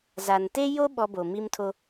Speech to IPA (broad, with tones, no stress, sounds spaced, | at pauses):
z a˨ n t e˦ j o˦ ɓ ɔ˦ b o˨ m i˦ m tʰ o˦